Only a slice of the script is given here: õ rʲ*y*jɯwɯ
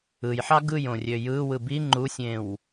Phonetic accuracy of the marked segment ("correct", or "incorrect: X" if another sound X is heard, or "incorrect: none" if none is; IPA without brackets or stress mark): incorrect: ø